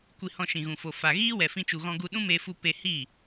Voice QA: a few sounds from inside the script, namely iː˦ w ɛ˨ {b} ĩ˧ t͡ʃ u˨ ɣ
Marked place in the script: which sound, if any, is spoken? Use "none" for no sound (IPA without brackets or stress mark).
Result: f